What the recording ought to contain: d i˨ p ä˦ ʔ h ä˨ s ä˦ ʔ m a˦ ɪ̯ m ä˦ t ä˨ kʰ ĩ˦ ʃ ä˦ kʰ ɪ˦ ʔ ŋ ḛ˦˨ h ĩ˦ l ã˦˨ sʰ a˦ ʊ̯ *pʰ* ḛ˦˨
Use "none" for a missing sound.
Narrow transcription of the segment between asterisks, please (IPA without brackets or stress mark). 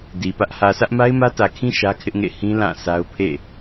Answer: pʰ